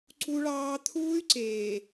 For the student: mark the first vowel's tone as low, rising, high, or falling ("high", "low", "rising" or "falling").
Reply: high